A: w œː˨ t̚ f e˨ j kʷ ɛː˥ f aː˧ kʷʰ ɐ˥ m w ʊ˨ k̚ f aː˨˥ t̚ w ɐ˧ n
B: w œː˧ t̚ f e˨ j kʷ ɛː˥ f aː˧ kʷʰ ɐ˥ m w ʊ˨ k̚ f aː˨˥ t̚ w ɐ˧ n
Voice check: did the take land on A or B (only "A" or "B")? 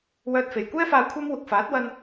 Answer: B